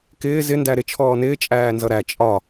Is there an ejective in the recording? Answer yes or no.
yes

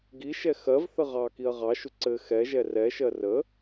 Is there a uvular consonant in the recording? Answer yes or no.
yes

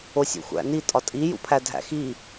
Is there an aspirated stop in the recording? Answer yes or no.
yes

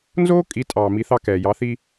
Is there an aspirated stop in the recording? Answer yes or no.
no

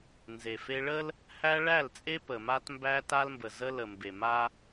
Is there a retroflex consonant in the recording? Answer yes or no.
yes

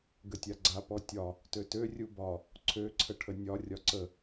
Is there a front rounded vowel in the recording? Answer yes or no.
yes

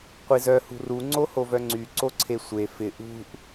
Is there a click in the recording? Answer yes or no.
yes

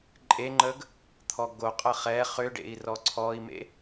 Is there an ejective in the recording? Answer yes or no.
yes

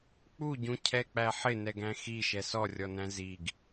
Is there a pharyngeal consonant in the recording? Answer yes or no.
yes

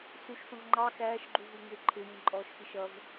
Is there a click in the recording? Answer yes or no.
yes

